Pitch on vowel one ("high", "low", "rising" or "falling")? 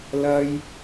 high